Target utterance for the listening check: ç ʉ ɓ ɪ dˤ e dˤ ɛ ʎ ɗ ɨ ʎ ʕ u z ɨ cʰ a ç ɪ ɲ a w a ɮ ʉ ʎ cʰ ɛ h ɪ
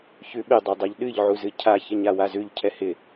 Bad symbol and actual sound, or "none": ɮ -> z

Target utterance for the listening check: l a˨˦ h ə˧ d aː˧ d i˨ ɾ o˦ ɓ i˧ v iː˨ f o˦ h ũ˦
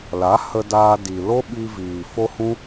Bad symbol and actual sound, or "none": ɾ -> l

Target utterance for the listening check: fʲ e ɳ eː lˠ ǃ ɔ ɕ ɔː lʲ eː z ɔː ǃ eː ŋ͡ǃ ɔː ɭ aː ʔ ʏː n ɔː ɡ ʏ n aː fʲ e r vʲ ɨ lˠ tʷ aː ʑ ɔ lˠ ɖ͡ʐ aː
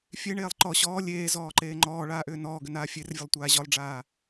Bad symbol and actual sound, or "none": ɨ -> ə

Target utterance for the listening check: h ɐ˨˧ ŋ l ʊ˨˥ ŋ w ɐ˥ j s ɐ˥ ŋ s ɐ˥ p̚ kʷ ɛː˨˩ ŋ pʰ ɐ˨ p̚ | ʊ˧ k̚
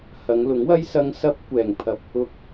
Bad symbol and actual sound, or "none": none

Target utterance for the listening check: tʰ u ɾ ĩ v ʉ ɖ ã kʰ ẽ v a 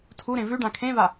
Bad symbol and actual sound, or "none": ĩ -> ẽ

